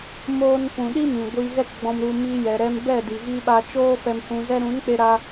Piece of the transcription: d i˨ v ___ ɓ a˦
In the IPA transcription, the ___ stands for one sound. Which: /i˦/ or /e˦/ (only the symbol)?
i˦